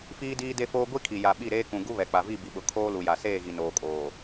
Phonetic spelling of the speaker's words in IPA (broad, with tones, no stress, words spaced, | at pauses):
fiː˦diː˦de˦foː˦ ɡʷi˦kʰi˨ ja˨ɓi˦˨ɾeː˦ kũ˨ ɡu˦βɛ˨k͡pa˨vi˦˨ bi˨ɓʊ˨ kʰoː˦lu˨ja˨ seː˦˨ɣi˨ noː˨kʼoː˨